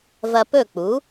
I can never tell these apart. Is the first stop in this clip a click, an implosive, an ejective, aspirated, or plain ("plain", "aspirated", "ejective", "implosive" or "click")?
plain